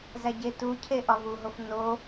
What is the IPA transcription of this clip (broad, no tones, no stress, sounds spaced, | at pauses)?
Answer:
z æ ɟ e t u cʰ e ʔ ɒ v u ɦ o f n o